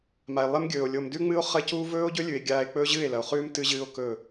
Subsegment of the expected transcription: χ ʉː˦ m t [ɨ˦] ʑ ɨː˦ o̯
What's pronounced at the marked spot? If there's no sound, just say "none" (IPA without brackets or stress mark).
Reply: ɨ˦